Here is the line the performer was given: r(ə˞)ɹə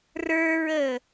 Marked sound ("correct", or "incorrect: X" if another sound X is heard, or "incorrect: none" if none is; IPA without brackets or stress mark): correct